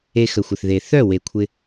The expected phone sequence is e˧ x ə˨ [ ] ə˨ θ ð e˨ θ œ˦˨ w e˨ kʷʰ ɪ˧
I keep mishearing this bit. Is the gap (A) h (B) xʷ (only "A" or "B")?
B